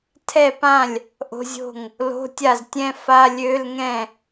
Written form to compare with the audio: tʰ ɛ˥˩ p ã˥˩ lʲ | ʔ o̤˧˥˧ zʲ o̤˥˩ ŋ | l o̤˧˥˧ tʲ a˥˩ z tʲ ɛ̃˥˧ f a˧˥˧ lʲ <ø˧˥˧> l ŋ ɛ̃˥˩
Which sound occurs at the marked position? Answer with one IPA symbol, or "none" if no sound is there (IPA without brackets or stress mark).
ø˧˥˧